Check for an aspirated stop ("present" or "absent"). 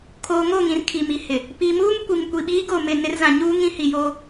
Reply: present